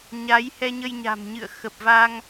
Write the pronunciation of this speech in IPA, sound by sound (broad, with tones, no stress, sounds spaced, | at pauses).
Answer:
ɲ a˨˦ j h ɛ˧ ɲ ə˧ j ɲ a̤˨˩ m ɲ ɨ̰˧˨ ə̯ x ə˨˩ p̚ v a˧ ŋ